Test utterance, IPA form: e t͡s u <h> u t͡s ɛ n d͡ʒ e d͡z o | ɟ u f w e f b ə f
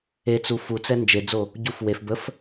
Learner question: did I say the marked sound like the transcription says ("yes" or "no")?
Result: no